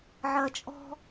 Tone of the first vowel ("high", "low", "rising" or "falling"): low